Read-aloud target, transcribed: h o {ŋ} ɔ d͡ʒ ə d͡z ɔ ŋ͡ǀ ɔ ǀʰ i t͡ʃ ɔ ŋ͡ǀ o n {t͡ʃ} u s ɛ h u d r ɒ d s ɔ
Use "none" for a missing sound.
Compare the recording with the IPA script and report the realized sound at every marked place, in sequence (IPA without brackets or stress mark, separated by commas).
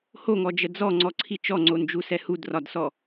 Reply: ŋ, d͡ʒ